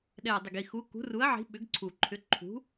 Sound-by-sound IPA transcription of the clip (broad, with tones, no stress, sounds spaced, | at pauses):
ɗ ɛ˨˩ ɐ̯ dˤ ʏ˨˩ ɡ i˨˩ x u˨˥ k ṳ˨˥ r u˨˥ ɐ̯ ʕ i̤˨˥ ɓ ʏ˨˥ ɡ ǀʰ u˨˩ ǃʰ ʏ˨˥ ǃʰ ṳ˨˥